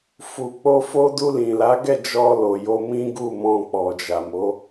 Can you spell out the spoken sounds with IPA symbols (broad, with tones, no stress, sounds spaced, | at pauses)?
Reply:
f u˨ k͡p o˧ f o˧ d u˧ l ĩ˨ l a˨˦ ɡ ɛ˦˨ d͡ʒ ɔ˧ l o˨ j o˧ m ĩ˦ ɡ u˦˨ m ɔ̃˧ k͡p ɔ˨ d͡ʒ a˨ m o˨˦